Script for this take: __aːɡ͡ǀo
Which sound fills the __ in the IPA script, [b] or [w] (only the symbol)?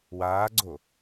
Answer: w